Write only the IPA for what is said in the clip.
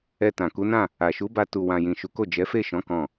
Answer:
ɛ˧ t ã˨ k u˨˦ n ã˦˨ | a˨ ʃ u˨˦ b a˧ t u˨ w ã˨ j ĩ˨ ʃ u˨˦ k o˦˨ d͡ʒ ɛ˨˦ f e˦˨ ʃ ɔ̃˨˦ k ɔ̃˦˨

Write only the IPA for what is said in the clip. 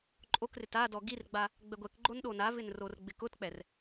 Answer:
ǃʼ o k r ɪ t a d ɔ ɡ i r ɡ͡b a | ɡ͡b ɛ ɡʷ ɛ k ɡ͡ǃ o n ɗ o n a v ɪ n r o r ɡ͡b ɪ k ʊ t k͡p ɛ r

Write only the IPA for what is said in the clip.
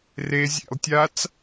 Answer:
r e zʲ ḛ lˠ tʲ a t͡s

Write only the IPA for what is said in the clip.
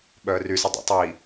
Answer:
ɓ œː r y s ɨ dˤ ḭ tˤ w i

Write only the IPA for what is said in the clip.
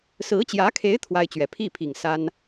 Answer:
s ɹ̩˧˥ t͡ɕ j ä˧˥ kʰ e˧˥ ɪ̯ t̪ʰ w a˥ ɪ̯ t͡ɕ ɥ ɛ˨˩ pʰ i˥˩ pʰ i˨˩ ŋ s a˥ n

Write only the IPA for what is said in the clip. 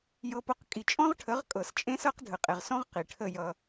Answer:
j ɤ˧ p ʊ˧ q kʼ i˨ t͡ʃʼ ɔ̃˦ ʁ ʈʰ ə˨˦ ʁ kʼ ɤ˨ s t͡ʃʼ ẽ˦ s ɤ˦ q dʱ ə˨ qʼ e˨ ʁ s ɔ̃˦ ʁ q i˨ ʈʰ ə˦˨ j ʌ˧

